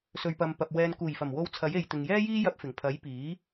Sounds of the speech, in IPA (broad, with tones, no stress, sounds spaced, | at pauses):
s ɵ˨ ɥ p ɐ˨ m p ɐ˨ p̚ w ɛː˨ n k uː˨˩ j f ɐ˨˩ m w o˧ w t͡sʰ ɐ˨˥ j e˨ j t̪ ɪ˨ ŋ j ɛː˥ j iː˥ j ɐ˧ p̚ f ɪ˨˩ ŋ pʰ ɐ˨˥ j p iː˨˥